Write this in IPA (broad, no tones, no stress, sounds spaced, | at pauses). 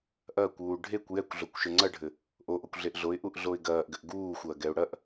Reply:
ʔ ɐː kʷ uː ɖʱ e kʷ j ɛ kʷ ɮ o kʷ ʃ ɘ ŋ͡ǀ ɐ ɖʱ ɘ | ʔ o ʔ o kʷ ɮ e ʔ ɮ o ɪ̯ ʔ u ʔ ɮ o ɪ̯ ɡ ɐː ʔ ɡ ɘ ʔ ɡ uː xʷ ɐː ɡ ɛ ʊ̯ ɽ ɐ ʔ